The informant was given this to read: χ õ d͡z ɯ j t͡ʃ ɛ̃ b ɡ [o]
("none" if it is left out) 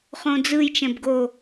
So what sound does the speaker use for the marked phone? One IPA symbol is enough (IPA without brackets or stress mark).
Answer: o